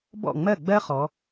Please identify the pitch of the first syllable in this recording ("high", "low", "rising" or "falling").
falling